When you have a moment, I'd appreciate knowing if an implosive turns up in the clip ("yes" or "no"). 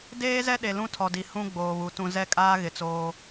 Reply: yes